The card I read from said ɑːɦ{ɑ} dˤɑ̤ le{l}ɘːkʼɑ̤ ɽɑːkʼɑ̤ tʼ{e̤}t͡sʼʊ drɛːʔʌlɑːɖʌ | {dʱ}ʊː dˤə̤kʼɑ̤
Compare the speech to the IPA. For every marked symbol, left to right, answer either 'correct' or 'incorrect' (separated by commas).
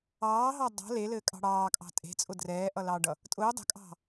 correct, correct, correct, incorrect